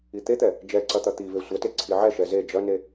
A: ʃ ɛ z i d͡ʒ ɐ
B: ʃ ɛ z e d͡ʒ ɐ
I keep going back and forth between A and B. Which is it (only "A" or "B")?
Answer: B